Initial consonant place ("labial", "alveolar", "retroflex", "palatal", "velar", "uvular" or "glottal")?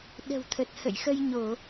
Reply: alveolar